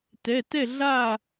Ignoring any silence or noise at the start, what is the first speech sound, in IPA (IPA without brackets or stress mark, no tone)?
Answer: t